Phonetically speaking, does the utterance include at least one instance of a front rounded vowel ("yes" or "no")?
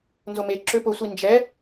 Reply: yes